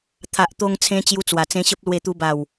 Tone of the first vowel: low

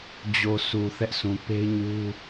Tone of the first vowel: low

